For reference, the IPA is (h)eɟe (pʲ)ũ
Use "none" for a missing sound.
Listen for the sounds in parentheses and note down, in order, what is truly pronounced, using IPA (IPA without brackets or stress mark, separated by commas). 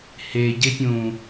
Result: h, pʲ